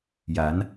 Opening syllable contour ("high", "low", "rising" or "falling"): rising